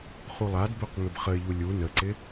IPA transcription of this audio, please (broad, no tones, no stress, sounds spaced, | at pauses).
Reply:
χ u lˠ a d b ø q ŋ ʏ b χ ə ɪ̯ ʎ u lʲ u n ə ǀ ɪ